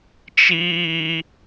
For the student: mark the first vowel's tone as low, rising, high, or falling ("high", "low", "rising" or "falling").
high